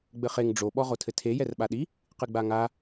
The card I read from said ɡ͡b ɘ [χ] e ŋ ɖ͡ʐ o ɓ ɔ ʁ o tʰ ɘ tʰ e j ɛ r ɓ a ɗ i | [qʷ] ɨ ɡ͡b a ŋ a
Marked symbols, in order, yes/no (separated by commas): yes, no